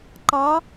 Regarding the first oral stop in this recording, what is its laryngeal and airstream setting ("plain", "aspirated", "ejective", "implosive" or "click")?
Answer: click